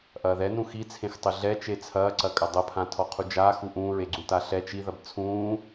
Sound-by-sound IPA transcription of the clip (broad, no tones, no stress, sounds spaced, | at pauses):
ʔ ɐː ð ɛ n ũ x i t͡sʰ ẽ x tˤ ɘ ɮ ɛ t͡ʃ e t͡sʰ ɐː ǀ ɐ kʼ ɐ dˤ ɐ pʰ ã tʰ ɔ qʰ u d͡ʒ aː x u ʔ ũː ɹ e ɡ͡ǀ ũ t a ɬ ɛ t͡ʃ i ð ɐ b t͡sʰ ũː